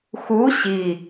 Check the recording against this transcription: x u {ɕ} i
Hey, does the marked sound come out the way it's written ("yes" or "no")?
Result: yes